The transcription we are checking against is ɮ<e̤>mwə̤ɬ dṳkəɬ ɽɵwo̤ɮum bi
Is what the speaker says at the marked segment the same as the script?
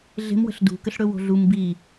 yes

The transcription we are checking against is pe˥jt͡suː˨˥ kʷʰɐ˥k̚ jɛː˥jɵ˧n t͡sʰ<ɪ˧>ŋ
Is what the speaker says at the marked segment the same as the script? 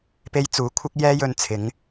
no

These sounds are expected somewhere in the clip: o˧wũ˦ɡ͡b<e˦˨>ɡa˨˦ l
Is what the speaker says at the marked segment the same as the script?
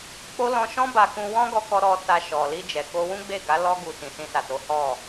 yes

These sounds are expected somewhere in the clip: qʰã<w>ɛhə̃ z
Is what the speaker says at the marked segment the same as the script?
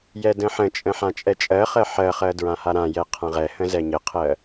no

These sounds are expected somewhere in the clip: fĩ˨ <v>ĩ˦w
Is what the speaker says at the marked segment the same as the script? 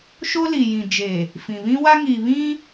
no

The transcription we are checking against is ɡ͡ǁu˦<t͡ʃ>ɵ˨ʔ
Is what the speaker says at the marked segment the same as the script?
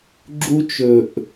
yes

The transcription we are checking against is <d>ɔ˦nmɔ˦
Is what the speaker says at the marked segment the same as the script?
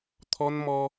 no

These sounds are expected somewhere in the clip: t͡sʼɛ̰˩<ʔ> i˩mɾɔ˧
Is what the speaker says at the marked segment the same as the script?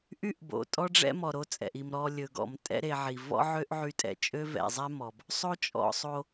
yes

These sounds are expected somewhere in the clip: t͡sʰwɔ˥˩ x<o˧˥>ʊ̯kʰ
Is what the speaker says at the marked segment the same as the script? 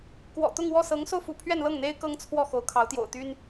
yes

